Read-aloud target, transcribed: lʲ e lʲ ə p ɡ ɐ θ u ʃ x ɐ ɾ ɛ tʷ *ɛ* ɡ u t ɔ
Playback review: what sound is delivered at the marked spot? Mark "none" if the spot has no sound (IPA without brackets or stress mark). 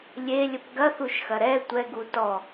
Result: ɛ